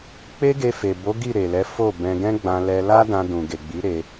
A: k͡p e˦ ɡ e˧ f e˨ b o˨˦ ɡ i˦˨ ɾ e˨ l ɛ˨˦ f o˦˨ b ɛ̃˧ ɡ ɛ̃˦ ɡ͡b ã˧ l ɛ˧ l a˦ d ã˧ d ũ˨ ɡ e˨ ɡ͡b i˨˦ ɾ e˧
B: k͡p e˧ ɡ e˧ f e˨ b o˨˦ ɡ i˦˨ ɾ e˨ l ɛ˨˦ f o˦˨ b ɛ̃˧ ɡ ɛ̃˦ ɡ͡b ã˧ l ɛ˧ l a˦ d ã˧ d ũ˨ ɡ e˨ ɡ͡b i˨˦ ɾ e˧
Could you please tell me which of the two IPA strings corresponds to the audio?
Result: A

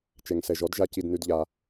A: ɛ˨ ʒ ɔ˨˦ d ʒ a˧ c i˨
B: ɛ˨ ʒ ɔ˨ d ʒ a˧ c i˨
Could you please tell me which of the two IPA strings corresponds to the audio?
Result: A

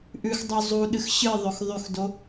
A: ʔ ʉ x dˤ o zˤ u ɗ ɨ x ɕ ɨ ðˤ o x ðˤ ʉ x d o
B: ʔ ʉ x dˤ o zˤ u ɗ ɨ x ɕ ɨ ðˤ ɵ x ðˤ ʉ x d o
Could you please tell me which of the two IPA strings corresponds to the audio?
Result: B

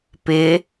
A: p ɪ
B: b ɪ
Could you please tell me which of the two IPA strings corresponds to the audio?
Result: A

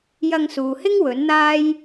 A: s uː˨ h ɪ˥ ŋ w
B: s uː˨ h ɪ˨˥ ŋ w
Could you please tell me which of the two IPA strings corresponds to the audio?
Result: A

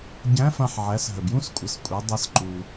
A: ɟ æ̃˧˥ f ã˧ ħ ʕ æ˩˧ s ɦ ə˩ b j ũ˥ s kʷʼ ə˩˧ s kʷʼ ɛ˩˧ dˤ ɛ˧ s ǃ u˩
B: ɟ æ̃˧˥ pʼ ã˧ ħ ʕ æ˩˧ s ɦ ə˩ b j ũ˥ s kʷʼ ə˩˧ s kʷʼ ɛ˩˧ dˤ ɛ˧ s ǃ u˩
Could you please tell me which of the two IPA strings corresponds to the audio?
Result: A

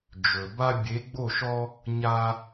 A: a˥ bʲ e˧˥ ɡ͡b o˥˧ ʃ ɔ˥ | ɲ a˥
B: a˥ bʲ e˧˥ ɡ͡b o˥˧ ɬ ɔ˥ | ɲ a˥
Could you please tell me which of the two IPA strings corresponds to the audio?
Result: A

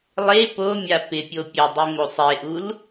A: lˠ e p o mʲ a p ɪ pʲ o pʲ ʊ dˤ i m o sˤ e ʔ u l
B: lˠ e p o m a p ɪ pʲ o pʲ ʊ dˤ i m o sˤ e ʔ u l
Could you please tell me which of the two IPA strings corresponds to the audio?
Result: A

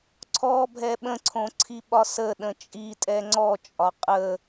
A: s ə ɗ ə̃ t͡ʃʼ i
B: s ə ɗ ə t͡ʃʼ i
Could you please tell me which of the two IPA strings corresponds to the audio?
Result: A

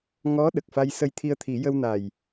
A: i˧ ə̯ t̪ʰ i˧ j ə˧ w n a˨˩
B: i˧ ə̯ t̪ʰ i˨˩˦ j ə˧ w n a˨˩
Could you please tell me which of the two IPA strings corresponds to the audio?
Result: B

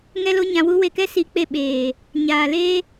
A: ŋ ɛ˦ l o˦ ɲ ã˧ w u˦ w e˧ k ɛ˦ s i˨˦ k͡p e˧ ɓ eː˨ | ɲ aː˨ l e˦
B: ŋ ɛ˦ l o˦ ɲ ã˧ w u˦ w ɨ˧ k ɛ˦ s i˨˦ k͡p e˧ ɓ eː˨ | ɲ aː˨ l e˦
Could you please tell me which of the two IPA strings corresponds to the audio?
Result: A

